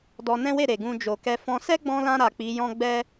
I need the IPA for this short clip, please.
d ɔ˧ n ɛ̃˦ w e˦˨ ɾ e˨ ɡ ũ˧ d͡ʒ o˨ k ɛ˧ f ɔ̃˧ s ɛ˦ ɡ͡b ɔ̃˧ l ã˧ ɾ a˨ k͡p i˨˦ j ɔ̃˦ ɡ͡b ɛ˦

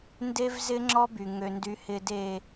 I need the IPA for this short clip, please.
n d e˦ v z ɪ˦ ŋ͡ǁ ɔ˦ b y˨ ŋ ø˨ n d y˨ h ɪ˨ d e˨

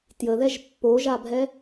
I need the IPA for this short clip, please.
t j ə ð ɛ ʒ pː o ʒ a bʱ ɛ

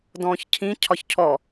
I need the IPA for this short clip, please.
d ɔ̃ː ç cʰ ĩ cʰ ɒ ç cʰ ɔ

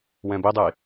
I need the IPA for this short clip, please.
w ɛ̃ b i dˤ i

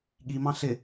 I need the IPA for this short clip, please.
ɠ i m ɑ̃ ɬ ɪ

